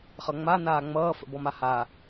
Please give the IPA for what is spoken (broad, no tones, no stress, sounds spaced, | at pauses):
χ ʌ ŋ͡m a n aː ŋ͡m ʌː f ə̰ b ɔ m a h a